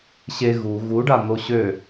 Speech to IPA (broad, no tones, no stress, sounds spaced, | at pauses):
ɕ e ɣ u ɣ u ɖ a n̪ o ɕ ø